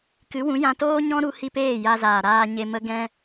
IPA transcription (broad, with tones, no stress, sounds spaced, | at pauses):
k ɨ˨˦ w ũ˨˦ j ã˧ t oː˦ ɲ ɔ̃˦ ɾ u˧ h i˧ p eː˦˨ j a˧ z aː˨ ɾ aː˧ ɲ e˧ m ə˦ ɡ ɛ̃˦